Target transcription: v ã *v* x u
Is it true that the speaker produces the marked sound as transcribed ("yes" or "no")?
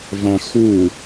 no